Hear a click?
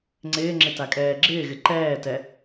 yes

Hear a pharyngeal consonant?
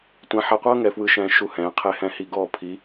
yes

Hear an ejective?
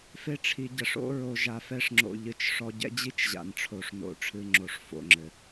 no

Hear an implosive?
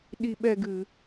yes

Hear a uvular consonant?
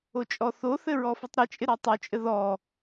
no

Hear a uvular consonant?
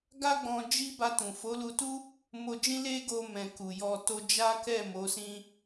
no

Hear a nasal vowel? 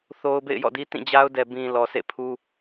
yes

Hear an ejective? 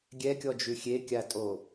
yes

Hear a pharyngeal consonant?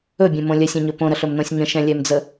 no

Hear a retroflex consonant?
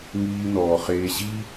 no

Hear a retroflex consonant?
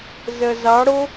yes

